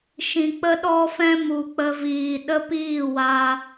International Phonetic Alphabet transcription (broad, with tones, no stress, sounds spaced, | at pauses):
ʃ ĩ˧ k͡p ə˧ ɗ ɔ˧ f ɛ̃˧ m u˧ k͡p ə˦ v iː˧ ɗ ə˦ p iː˦˨ w a˧